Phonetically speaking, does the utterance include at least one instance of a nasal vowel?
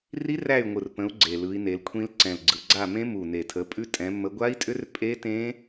yes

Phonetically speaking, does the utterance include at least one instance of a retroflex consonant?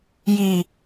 no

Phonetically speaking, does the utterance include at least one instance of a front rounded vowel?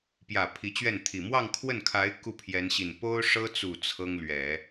no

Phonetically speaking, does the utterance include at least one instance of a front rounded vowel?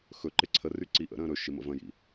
yes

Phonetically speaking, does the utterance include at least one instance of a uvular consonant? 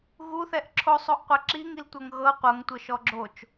yes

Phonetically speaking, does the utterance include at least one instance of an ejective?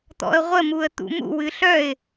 no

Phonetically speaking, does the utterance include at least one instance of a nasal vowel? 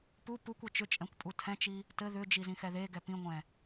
yes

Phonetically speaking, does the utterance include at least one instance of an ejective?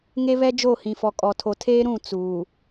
yes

